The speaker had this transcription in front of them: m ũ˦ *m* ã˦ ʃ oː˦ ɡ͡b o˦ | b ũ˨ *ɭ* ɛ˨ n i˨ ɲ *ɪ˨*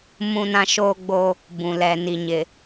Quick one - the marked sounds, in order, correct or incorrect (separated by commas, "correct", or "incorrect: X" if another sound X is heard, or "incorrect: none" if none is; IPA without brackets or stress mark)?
incorrect: n, incorrect: l, correct